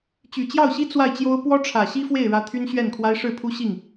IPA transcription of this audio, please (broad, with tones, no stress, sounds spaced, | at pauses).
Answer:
t͡ɕ y˨˩ t͡ɕ j ɑ˥˩ ʊ̯ ɕ i˥ t͡s w a˥˩ ɪ̯ t͡ɕ j o˥ ʊ̯ p w ɔ˥ ʈ͡ʂʰ ä˨˩ ɕ i˥ f w e˥˩ ɪ̯ ɻ ä˧˥ t̪ʰ y˥ n ɕ ɥ ɛ˥˩ n kʰ w a˥ ɪ̯ ʂ ɻ̩˥˩ pʰ u˥ ɕ i˥˩ ŋ